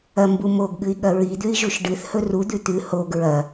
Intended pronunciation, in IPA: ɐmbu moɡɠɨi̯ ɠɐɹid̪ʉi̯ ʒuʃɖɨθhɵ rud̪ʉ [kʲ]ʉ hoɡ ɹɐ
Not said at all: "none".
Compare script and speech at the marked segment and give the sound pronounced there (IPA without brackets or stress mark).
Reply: t̪